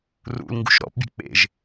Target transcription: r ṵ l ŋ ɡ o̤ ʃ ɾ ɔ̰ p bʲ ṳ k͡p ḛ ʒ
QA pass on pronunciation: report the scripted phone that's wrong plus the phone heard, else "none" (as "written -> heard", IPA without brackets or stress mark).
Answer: o̤ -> ṳ